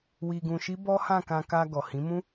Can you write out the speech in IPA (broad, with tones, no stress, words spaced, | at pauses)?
wi˧ɡũ˧ʃi˦bɔ˦ hã˦˨kã˧ ka˧ ɡɔ˨hĩ˨˦mũ˦